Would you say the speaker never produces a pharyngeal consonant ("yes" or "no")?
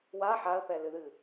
no